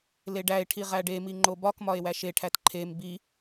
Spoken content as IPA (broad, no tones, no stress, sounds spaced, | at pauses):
l e ɖ æ e̯ ʈʰ i ʁ æ ɖ e m i ŋ͡ǃ o b ɒ k m ɒ e̯ w æ ʃ e ʈʰ æ t ǃʰ e m b i